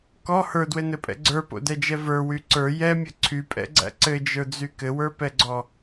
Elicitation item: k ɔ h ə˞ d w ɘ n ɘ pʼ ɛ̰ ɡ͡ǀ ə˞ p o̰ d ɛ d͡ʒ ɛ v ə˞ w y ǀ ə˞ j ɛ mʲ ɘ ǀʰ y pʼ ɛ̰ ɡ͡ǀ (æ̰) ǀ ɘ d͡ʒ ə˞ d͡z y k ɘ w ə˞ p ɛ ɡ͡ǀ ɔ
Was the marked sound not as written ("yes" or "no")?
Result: no